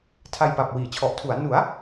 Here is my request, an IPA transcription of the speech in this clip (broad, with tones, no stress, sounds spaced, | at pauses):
tʰ a˧ j p a˨˩ p̚ w iː˩˦ t͡ɕʰ ɔ˨˩ ʔ tʰ u˩˦ a̯ n u˩˦ a̯